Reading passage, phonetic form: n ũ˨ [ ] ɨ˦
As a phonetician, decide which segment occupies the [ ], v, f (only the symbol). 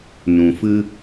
f